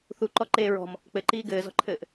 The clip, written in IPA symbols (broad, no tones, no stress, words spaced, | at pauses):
θuǃɔǃeː ɹɔ̤m | k͡pɘǃiː ɡɘːzɔ̤ǃʰɘːʔ